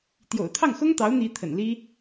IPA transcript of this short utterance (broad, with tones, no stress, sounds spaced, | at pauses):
t̪ j o̰˨˩ ʊ̯ t̪ʰ ɑ˥˩ ŋ x ʊ˥ ŋ t̪ ɑ˧˥ ʊ̯ n̪ i˧˥ t̪ʰ ə̰˨˩ n l i˥